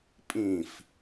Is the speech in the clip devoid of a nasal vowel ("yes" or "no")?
no